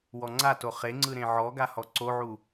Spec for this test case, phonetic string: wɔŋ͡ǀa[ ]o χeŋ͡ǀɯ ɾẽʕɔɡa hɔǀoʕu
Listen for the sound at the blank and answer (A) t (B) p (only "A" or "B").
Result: A